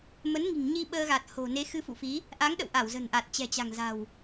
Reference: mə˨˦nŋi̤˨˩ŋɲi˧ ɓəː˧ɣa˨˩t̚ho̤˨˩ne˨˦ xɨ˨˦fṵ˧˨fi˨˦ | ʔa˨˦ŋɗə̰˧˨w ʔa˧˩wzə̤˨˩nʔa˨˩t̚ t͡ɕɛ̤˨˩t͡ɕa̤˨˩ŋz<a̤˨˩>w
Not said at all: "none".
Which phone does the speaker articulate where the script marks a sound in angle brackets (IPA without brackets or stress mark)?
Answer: a̤˨˩